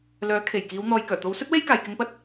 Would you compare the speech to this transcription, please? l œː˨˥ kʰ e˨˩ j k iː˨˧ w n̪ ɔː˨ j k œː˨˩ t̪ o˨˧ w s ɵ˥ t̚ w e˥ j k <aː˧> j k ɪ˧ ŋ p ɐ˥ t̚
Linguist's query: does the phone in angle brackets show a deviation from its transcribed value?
yes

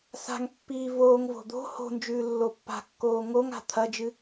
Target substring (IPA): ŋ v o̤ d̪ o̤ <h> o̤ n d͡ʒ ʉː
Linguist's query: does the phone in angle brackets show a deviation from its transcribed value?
no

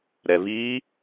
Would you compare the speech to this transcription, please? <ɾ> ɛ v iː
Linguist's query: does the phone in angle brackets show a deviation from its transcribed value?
no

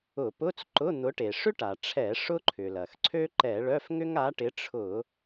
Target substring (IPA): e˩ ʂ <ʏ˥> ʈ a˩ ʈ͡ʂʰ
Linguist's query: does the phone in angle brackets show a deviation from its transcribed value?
no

